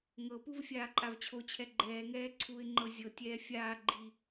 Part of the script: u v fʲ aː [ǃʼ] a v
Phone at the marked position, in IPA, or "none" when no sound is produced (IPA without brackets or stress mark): ǃʼ